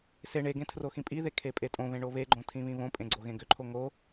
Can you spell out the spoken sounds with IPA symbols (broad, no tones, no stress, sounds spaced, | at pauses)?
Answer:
s e ɳ e ɡ ẽ tʰ r o x ĩ pʼ i ð e kʰ e pʼ e tʼ õ β ẽ ɳ o β e ɡ͡ǃ õ tʰ ĩ β ĩ β õ pʼ ẽ ɡ͡ǀ o ɣ ẽ ɡ ʏ ǃʰ o ŋ o